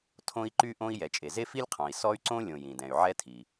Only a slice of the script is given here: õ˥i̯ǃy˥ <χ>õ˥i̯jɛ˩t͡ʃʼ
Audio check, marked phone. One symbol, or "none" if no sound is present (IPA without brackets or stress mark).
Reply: ʔ